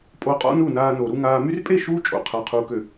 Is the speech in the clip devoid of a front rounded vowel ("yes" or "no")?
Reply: no